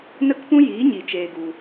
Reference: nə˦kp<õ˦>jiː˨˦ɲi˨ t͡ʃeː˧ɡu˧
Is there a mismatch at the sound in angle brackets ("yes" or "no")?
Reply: yes